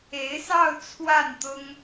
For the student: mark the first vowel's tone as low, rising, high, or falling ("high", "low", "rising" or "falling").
rising